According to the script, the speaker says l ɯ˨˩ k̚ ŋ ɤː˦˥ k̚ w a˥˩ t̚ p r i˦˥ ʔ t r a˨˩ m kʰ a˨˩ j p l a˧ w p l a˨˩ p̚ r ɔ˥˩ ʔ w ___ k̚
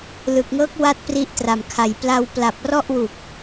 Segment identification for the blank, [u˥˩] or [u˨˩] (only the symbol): u˨˩